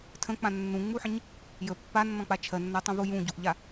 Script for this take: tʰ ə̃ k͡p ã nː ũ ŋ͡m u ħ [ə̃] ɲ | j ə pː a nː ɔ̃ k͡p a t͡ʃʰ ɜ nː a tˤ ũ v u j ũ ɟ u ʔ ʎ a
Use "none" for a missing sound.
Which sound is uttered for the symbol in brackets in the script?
ə̃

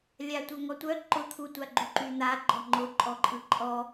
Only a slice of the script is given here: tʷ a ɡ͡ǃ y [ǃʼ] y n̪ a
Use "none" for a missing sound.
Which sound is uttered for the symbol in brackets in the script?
ǃ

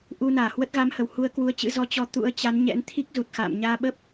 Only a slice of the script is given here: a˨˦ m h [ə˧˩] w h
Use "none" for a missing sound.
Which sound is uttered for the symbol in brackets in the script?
ə˧˩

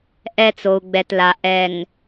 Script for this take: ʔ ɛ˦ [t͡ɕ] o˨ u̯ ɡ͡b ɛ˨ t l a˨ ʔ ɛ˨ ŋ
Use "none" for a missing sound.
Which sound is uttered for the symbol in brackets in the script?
t͡s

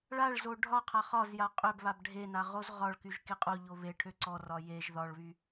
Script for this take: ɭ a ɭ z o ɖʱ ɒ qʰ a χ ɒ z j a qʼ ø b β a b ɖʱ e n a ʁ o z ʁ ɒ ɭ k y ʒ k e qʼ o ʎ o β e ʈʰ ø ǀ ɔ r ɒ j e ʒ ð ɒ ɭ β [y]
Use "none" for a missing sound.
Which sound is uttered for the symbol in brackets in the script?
y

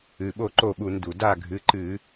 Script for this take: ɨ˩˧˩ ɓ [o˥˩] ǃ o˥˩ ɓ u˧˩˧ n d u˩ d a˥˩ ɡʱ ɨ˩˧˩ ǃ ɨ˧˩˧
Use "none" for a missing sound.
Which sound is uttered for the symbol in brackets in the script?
o˥˩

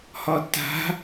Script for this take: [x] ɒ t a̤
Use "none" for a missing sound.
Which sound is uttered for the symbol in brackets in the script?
h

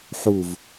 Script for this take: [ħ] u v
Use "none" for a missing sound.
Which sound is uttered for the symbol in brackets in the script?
ħ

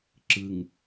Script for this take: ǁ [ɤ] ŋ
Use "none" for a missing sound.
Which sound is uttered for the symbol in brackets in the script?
ɯ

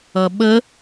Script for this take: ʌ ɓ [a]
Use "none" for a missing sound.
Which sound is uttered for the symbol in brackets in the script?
ə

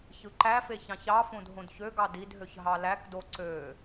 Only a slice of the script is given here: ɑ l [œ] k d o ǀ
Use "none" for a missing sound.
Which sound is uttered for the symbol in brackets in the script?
æ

